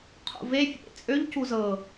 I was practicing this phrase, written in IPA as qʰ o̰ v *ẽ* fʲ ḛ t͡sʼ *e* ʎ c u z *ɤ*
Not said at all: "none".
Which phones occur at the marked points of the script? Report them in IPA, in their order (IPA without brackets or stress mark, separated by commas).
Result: e, ø, ɤ